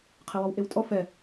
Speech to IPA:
qʰɛwɔwʔewtʼɔ fɛ

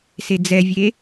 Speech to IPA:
sed͡zɛvʲe

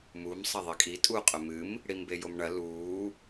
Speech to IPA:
mum sˤɐðˤikʼi tʼu qʼɵmɨm | ɽimbejomɳɐ luː

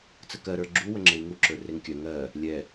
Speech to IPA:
t͡səkɜ ɾə˞ɡ͡ǁu wəŋ͡ǁei̯ŋu ǁə˞reŋkʲœ ŋɜ | lʲɛ

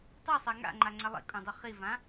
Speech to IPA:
tˤɛsˤa ŋa̰ŋ͡ǃaŋ͡ǀa lˠḭkʼũdˤu χivã

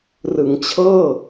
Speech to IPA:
rɯ˩˦ŋt͡ɕʰɤː˥˩

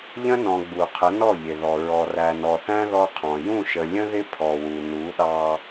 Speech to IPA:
ʎə̃˦nɔ̃˨ ɡ͡bu˨ qʰə˨˦nɔ˦˨ ʎɪ˨ðɔ˨ ɹɔ˨ræ˨nɔ˨θæ̃˦ ðɔ˦qʰɔ̃˨ jũ˦˨ʃə˨lʲə̃˦ðɪ˦ pʰɔ˨wu˨ nu˨˦ɗɑ˦

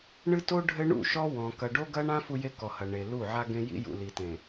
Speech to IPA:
ɳɨ˦to˦ ɖʱɘ˦ɳṵ˦˨ʃɔ˦ wɔ̃˨ kɐ˨ɖo˦ɡɐ˦ɳã˦ fu˦je˦kɔ˨hɐ˨ ɳe˨lu˦˨ ʕa˦ɡẽ˦ jḭ˦jṵ˨li˨tẽ˨

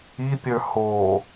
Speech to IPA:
ipʲə˞ ho

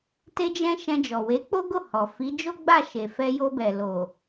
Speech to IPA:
te˧d͡ʒɛ̃˧ ʃɛ̃˧d͡ʒɔ˨ we˨˦k͡po˦ɡo˦˨hɔ˨ fi˨˦d͡ʒo˦ɡ͡ba˦˨ ʃe˨fɛ˧jo˧bɛ˨ lo˨

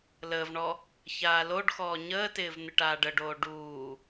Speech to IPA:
ləːvɳɔ | çaːloɖxɔː ɲəːtɪːv n̪ɪʈaːɖəɖoː ɖuː

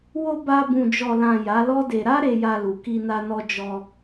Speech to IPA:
wo˧ ba˧ bũ˨d͡ʒɔ˨lã˨ ja˨˦lɔ˦de˧ ɾa˦ ɾe˧ja˧lu˨ ki˧na˧nɔ˧ d͡ʒɔ˧

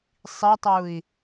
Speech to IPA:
sˤitˤui̯

